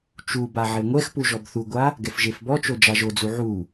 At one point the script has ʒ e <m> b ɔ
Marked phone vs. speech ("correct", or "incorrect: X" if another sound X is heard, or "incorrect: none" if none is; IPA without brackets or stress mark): incorrect: f